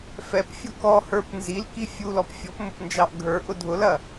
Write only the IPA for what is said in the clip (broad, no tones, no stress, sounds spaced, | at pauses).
f ɛ p fʲ ʊ k ɔ h ə˞ p n z i l k i fʲ u l ɔ p fʲ ɔ p m ʊ p n d͡ʒ ɑ ʔ ɡʱ ə˞ ʔ ʊ dʱ ʊ l ɐ